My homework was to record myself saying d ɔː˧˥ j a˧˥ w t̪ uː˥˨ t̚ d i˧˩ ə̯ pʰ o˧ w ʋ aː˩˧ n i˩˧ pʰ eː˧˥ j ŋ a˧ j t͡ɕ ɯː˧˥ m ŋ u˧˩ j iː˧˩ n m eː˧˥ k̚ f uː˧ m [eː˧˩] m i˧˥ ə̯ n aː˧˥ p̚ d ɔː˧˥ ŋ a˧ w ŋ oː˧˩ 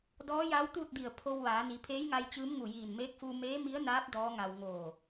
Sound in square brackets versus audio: incorrect: eː˧˥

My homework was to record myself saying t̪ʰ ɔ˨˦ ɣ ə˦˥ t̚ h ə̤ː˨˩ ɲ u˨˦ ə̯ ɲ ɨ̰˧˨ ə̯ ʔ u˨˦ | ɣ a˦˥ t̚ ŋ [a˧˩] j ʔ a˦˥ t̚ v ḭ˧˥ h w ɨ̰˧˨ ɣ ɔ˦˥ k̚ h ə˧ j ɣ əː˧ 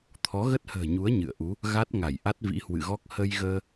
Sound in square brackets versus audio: correct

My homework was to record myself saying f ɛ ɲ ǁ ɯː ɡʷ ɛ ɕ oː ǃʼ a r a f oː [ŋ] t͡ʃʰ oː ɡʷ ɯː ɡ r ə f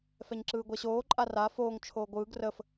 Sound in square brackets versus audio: correct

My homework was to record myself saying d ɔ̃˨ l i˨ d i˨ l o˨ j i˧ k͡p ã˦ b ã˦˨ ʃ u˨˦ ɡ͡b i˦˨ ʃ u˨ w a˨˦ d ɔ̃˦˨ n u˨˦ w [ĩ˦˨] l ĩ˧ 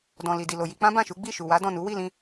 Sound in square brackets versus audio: incorrect: i˦˨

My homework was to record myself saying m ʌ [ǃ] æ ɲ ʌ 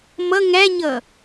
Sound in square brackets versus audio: incorrect: ŋ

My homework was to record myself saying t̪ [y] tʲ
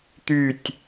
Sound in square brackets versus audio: correct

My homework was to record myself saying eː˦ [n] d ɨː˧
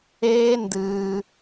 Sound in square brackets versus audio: correct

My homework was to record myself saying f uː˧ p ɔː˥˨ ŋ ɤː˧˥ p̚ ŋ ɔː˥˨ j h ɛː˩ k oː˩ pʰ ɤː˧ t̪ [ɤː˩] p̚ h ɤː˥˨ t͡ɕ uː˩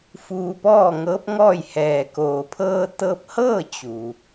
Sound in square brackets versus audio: incorrect: ɤː˧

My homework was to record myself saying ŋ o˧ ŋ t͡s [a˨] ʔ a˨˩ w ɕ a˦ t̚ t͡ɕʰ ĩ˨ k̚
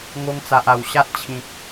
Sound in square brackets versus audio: correct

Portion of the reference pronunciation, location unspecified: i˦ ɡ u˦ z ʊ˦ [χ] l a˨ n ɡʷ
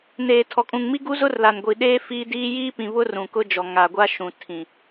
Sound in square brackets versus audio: incorrect: r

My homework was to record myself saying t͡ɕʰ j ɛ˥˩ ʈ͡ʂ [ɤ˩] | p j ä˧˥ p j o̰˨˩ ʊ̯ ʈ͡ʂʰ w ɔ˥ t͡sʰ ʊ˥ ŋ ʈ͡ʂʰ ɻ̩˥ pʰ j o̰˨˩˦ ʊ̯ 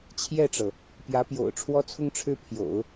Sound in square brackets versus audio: correct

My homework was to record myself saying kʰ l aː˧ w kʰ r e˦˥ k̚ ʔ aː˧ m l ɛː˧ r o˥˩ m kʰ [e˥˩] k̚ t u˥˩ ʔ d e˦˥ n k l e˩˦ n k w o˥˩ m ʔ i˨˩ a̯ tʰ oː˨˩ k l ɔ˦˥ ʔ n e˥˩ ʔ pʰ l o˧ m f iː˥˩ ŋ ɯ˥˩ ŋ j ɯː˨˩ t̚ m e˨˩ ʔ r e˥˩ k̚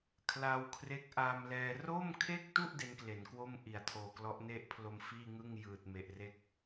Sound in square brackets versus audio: correct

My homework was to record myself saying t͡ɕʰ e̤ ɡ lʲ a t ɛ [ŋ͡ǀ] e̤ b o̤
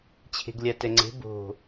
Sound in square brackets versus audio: correct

